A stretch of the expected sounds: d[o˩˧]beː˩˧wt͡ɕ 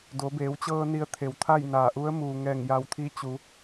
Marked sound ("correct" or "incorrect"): correct